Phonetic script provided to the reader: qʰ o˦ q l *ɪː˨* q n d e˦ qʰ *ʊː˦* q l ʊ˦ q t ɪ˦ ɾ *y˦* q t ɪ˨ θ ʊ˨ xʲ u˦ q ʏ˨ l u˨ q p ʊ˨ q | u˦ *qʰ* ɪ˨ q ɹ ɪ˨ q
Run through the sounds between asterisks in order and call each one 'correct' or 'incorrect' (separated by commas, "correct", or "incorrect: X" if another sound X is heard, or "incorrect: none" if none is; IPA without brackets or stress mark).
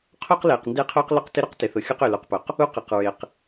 correct, correct, incorrect: ʏ˦, incorrect: q